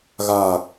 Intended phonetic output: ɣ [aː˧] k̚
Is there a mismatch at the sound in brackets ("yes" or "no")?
yes